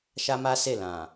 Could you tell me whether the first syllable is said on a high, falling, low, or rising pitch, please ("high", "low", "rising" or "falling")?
high